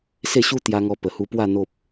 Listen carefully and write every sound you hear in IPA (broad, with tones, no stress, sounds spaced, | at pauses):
s e˥˧ ɕ u˦ t̪ j a˧ ŋ ɔ˧ p ə˨˩ h u˧ p w a˥˧ n̪ o˦ p̚